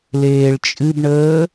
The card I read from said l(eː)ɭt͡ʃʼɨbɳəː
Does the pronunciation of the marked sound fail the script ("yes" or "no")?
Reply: no